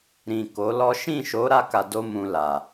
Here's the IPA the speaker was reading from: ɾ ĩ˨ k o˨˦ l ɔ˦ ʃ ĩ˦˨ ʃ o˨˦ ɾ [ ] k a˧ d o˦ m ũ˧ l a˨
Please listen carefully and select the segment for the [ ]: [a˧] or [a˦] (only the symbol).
a˧